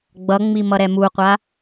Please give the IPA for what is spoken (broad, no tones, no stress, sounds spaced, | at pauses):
ɡ͡b ʌ ŋ͡m i m ʌ ɾ ɛ m u qʷ a